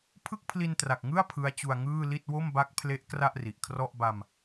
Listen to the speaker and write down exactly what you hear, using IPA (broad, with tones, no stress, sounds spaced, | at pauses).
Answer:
pʰ ɯ˥˩ k̚ pʰ l i˧ n t r a˨˩ k̚ ŋ ɯ˥˩ a̯ pʰ ɯ˦˥ a̯ t͡ɕ u˧ a̯ ŋ ɯː˥˩ l i˥˩ t̚ w o˥˩ m b a˦˥ k̚ pʰ l e˦˥ ʔ k r a˥˩ ʔ r i˨˩ ʔ kʰ r ɔ˥˩ ʔ b a˧ m